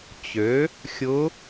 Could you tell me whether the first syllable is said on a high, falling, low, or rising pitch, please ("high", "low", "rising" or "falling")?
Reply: rising